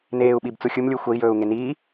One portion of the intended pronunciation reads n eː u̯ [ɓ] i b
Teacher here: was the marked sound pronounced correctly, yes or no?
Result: yes